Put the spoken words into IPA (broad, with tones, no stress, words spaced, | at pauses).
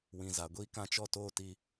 wĩ˨za˨ ɡʷiː˦kã˦t͡ʃɔ˦ toː˦ti˦